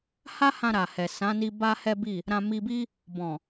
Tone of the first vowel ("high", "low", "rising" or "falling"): high